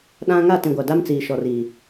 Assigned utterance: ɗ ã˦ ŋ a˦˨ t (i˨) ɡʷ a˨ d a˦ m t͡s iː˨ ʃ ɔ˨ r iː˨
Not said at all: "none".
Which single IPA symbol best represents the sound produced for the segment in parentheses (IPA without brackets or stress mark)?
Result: ĩ˨